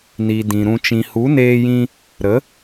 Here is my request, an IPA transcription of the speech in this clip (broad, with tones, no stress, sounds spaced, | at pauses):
n i˨ d ĩ˨ ɾ ũ˧ t͡ʃ ĩ˨ h u˨˦ n eː˧ j ĩ˧ | ɾ ə˨˦